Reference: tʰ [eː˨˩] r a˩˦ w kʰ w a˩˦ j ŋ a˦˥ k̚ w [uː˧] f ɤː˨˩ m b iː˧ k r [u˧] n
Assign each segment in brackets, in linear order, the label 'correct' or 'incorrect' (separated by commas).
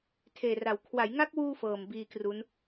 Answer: correct, correct, incorrect